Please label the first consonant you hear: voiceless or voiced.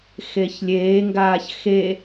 voiceless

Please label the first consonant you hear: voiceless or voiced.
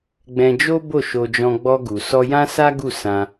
voiced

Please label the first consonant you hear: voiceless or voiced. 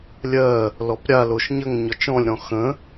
voiced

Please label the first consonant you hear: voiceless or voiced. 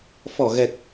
voiceless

